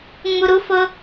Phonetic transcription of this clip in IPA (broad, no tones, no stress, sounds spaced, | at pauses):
ŋ͡m u ɾ u f ʊ